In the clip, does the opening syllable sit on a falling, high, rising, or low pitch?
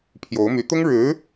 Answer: rising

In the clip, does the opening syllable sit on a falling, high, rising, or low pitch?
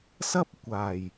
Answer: high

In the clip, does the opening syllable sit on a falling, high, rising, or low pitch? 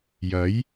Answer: rising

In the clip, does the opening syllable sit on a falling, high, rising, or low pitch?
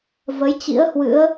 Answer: rising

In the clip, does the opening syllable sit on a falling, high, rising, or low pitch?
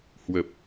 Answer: low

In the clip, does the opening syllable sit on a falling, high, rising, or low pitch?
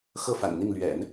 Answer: falling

